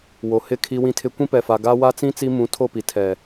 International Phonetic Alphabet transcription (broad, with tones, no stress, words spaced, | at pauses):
wo˨hɪ˦˨ kʰi˦wĩ˦tʰɪ˦ kʷĩ˦pɛ˨fa˨ ɡa˦wa˦ t͡sĩ˦ t͡si˦ mũ˨˦tʰo˦˨pi˨ tʰɛ˨